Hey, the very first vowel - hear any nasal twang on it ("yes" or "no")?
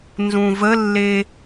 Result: yes